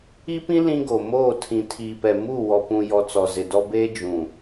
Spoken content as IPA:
i˦ p ĩ˦ l ĩ˦ ɡ o˨ m oː˦˨ tʰ ĩ˨ tʰ iː˨ p ɛ˨ m u˦˨ w ɔ˨ p ũ˨ j ɔ˨ t͡s ɔ˨ z ɪ˨ d ɔ˦ b eː˦ d͡ʒ ũ˨

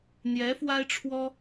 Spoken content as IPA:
n̪ j ɛ˧˥ f w a˥ ɪ̯ ʈ͡ʂʰ w ɔ˥

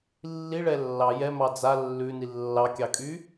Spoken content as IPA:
lː i ɭ ɛ lː ɑ j ɛ m ɑ d͡z a lː ʉ n i lː ɑ kʲ ɑ kʼ y

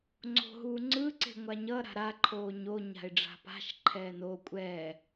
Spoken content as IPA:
ŋ͡ǀ o̤ ɦ uː ŋ͡ǀ ɯ ǀ e̤ ŋʷ a ɲ ʌ ɾ a̤ ɾ a ǃʰ oː ɲ o ɲ a̤ ɪ̯ ɖ͡ʐ a̤ p a̤ ʃ ǃʰ ɛː n o kʷʼ ɛː

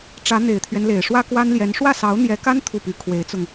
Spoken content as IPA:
ʈ͡ʂ ä˧˥ n̪ e˨˩ ɪ̯ t̪ʰ ɥ ɛ˦ n l e˨˩ ɪ̯ ʂ w ä˥ k w a˥ n l j ɛ˧˥ n ʂ w ä˥˩ s ɑ˧˥ ʊ̯ n̪ j ɛ˧˥ k a˥ n t̪ʰ u˥˩ p y˧˥ kʰ w e˧˥ ɪ̯ t͡s ʊ˧ ŋ

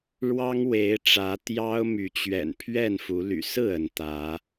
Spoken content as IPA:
ɻ w ɑ˦ ŋ w e˨˦ ɪ̯ ʈ͡ʂ ä˨˦ t̪ j ɑ˦ ʊ̯ m y˨˦ t͡ɕ ɥ ɛ̰˨˩ n pʰ ɥ ɛ˥˨ n f u˨˦ l y̰˨˩ s ɹ̩˥˨ ə˨˦ n t̪ ä˨˦

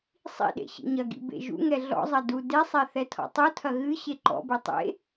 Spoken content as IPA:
sˤ ḭ ɗ ḛ ɕ ḭ ɲ ɐ ɡ ḭ b ḛ ʒ ṵ ŋ ɛ ɮ ɔ̰ zˤ ɐ d u d e sˤ ɛ θ ɛ tʰ ɔ̰ tˤ u tʰ ɐ ɣ ɨ ɕ e ǃ ɔ̰ b e tˤ ḛ

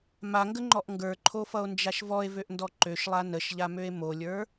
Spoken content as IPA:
m a ŋ ɡ ə ŋ͡ǃ ɔ ʔ ŋ ɡ ə˞ ǃʰ o f ʌ o̯ n d͡ʒ a ʃ v ɔ e̯ v ø ʔ n d ɔ ǃ ø ʃ lˠ a n ə ʃ ʎ a m ø e̯ m o lʲ ə˞

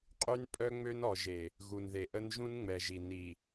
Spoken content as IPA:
qʼ y˦ n pʼ œ˦ ŋ͡m ø˦ n ɔ˨ ʒ e˨ | ɣ u˨ n ð e˨ ʔ ə˦ n ʒ ũ˦ n ŋ͡m ɛ˨ ʒ i˨ n i˨

